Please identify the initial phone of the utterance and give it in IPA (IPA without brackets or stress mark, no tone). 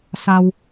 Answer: s